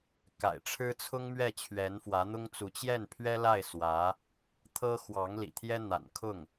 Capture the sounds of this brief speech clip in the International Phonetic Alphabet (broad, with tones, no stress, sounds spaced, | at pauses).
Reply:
k a̰˨˩ ɪ̯ ʈ͡ʂʰ ɻ̩˥ t͡sʰ ʊ˥ ŋ m ɥ ɛ˥˩ t͡ɕʰ ɥ ɛ˧˥ n f w ä˧˥ n̪ ʊ˥ ŋ t͡s u˧˥ t͡ɕ j ɛ˥˩ n pʰ ɥ ɛ˥ l a˥˩ ɪ̯ s w ä˧˥ | t̪ʰ ɤ˥ x w ɑ˧˥ ŋ l ḭ˨˩ t̪ʰ j ɛ˥ n̪ a̰˨˩ n kʰ ʊ˥˩ ŋ